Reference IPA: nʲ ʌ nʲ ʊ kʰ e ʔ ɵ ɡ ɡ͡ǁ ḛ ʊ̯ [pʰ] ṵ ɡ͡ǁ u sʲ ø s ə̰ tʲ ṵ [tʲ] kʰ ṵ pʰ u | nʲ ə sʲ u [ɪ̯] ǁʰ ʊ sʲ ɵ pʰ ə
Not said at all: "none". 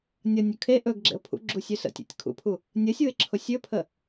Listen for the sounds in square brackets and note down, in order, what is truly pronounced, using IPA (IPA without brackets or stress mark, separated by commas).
pʰ, tʲ, ɪ̯